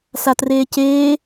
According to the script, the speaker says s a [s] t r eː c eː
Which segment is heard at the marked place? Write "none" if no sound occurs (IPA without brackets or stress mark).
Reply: none